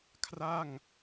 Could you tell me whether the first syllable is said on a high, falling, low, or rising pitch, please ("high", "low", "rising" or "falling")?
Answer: falling